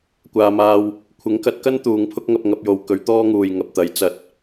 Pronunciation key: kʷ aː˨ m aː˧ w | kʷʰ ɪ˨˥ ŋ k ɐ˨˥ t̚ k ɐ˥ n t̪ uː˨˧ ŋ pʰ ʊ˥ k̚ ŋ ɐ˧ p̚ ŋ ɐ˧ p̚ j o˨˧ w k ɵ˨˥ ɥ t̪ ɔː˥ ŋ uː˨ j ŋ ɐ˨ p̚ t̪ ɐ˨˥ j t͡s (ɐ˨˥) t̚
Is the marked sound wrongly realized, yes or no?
no